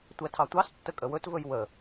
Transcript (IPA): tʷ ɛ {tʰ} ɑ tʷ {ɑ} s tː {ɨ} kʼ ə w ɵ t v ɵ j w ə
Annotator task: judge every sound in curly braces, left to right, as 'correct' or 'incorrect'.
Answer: correct, correct, incorrect

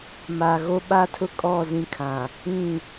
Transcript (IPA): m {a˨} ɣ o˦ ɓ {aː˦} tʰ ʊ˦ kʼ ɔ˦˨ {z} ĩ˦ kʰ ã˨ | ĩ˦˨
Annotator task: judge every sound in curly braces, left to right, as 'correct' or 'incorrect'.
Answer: correct, incorrect, correct

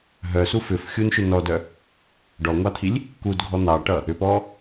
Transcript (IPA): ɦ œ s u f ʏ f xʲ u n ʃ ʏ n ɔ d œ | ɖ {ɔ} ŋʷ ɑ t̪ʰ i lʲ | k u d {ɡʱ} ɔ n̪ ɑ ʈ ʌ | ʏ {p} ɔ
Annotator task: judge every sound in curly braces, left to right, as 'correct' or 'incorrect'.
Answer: correct, correct, correct

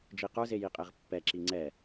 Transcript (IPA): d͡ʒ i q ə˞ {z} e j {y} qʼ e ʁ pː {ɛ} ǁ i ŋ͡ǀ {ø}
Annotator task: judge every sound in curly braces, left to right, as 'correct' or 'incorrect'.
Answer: correct, incorrect, correct, incorrect

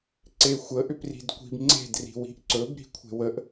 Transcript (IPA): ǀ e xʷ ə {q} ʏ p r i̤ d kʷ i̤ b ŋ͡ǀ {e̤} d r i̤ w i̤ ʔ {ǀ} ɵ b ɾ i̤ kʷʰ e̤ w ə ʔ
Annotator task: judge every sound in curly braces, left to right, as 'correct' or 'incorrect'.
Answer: incorrect, correct, correct

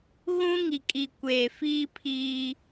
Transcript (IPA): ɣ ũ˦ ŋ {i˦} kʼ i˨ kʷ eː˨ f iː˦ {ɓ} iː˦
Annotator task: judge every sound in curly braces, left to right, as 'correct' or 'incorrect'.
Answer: incorrect, incorrect

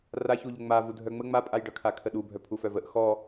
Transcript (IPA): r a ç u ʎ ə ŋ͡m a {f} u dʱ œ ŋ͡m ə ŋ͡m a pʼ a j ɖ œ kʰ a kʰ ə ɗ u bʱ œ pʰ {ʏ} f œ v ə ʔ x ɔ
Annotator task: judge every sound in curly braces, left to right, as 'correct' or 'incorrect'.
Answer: incorrect, incorrect

